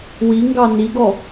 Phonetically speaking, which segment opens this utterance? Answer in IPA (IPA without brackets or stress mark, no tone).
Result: w